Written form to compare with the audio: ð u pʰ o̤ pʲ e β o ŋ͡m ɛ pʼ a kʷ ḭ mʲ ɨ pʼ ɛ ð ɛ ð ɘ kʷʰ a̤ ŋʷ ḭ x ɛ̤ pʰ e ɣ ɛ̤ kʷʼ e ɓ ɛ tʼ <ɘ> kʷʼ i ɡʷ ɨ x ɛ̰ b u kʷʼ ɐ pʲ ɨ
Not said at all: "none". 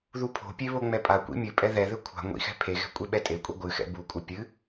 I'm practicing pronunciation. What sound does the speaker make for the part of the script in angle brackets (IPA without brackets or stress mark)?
e